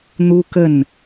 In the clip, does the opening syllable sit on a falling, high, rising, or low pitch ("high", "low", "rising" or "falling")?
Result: high